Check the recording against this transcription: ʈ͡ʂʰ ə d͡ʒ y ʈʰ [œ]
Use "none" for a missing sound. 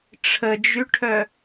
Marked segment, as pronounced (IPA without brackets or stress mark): œ